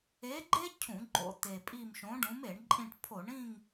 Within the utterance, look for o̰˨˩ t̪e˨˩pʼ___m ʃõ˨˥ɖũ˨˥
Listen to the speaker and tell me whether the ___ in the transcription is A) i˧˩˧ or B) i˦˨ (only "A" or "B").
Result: B